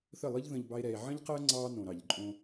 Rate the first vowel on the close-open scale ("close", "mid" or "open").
mid